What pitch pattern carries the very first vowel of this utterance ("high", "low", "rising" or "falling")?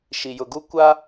low